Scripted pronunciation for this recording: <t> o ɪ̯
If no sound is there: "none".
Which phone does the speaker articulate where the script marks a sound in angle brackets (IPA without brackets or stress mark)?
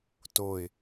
t